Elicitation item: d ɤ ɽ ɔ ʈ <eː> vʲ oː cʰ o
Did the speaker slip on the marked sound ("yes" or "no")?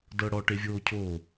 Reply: yes